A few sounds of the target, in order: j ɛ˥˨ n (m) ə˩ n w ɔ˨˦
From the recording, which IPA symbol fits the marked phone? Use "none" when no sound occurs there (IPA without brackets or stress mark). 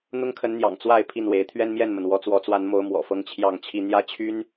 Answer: m